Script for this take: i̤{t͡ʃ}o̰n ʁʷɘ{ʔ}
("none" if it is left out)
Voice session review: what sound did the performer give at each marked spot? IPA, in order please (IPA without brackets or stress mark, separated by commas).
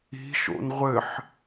ʃ, ħ